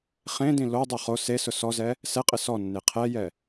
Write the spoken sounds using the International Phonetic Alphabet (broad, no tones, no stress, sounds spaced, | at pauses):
χ ẽ d ĩ l o dˤ ʊ χ o s e s ʊ s ɔ z ɛ | s ɛ qʼ ɪ s ɔ nː e qʰ ɛ j ɛ